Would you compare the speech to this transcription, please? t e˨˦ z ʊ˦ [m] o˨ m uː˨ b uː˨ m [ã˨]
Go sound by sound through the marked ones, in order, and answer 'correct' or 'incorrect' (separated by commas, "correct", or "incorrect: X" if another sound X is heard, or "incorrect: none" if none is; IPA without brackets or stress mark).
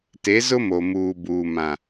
correct, correct